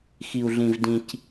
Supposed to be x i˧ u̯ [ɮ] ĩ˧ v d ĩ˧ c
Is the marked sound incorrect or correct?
correct